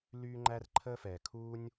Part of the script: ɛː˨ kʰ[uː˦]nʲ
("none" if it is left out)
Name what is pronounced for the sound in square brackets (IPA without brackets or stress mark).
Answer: uː˦